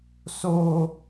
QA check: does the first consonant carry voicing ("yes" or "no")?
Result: no